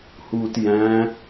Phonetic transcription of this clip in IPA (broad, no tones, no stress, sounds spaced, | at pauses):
h uː t j æ̃